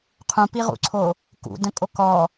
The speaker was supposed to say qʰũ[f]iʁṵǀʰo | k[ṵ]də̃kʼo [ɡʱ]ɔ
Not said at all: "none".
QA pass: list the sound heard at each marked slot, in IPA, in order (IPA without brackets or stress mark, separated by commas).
p, ṵ, k